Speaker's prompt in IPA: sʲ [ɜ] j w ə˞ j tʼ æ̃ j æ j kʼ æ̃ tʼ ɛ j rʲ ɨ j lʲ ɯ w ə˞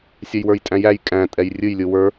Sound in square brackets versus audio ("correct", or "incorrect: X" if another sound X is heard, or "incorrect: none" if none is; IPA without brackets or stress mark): incorrect: ɛ